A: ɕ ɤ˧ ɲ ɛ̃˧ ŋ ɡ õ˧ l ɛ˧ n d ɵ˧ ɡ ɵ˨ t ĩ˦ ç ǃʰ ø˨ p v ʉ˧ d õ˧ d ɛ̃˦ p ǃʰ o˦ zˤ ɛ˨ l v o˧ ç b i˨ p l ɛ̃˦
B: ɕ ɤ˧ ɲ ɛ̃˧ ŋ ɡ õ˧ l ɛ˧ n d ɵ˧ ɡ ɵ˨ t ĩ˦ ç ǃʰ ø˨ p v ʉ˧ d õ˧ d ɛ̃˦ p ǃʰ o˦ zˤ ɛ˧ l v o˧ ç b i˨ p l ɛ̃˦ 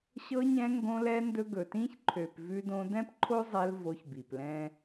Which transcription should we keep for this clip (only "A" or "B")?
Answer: B